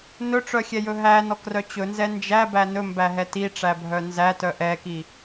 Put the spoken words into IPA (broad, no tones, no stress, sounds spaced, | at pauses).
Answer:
n ɵ ʈ͡ʂ œ xʲ ɛ j ɵ ɦ æ n ɔ k r œ t͡ɕ ɵ n z ɛ n d͡ʒ æ b æ n ɵ m b æ ɦ ɛ t i ʈ͡ʂ æ bʱ œ n z æ t œ ʔ ɛ k i